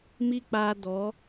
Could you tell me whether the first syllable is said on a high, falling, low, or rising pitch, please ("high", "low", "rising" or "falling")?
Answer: high